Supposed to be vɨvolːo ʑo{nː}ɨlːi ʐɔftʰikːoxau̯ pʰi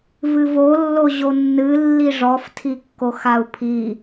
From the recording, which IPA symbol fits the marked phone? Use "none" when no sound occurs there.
nː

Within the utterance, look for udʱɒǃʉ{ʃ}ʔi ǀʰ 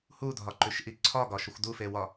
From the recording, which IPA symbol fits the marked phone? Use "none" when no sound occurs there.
ʃ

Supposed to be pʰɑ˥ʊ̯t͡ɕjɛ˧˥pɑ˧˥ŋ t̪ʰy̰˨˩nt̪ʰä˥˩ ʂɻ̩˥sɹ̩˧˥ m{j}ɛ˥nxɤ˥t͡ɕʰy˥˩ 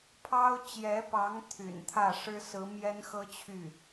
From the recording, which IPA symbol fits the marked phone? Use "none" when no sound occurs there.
j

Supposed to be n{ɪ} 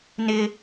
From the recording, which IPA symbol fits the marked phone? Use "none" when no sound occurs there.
ɪ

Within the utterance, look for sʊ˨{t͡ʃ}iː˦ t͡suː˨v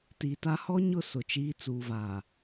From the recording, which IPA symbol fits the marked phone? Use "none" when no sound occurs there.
t͡ʃ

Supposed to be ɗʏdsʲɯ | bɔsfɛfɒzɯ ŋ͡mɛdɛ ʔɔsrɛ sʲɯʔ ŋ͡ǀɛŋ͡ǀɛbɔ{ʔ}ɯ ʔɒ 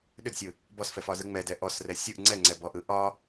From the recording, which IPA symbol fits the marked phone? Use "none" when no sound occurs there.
ʔ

